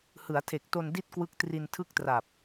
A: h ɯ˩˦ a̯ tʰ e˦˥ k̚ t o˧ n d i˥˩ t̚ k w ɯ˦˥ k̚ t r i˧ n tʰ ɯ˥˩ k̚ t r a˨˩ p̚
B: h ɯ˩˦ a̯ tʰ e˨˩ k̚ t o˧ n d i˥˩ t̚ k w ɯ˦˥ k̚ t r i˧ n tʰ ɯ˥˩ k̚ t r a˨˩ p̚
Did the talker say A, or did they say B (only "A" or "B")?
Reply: B